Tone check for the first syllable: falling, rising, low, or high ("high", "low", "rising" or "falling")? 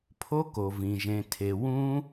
high